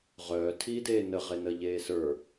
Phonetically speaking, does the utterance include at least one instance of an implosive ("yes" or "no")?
no